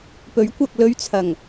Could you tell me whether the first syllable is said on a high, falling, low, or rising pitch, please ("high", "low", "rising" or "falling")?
rising